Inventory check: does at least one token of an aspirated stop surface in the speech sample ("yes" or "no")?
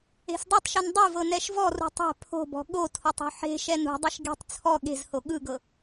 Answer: yes